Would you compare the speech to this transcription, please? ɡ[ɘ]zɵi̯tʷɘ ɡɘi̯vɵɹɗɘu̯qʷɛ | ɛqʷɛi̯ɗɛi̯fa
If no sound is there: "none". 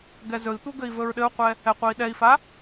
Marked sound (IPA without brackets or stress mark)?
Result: ɛ